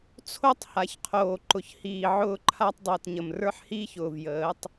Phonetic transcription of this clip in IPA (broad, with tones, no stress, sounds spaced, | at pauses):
t͡sʰ o˦ tˤ h a˨ ç qʰ oː˨ ǃ ʊ˨ ç h iː˨ ʕ ʊː˦ ǃʰ a˦ tˤ dˤ əː˨ t ɲ ə˨ m r ə˞˦ ħ h iː˦ ç ʊː˨ v j əː˨˦ tˤ